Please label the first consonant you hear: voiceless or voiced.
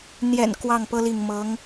voiced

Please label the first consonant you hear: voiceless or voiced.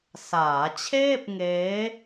voiceless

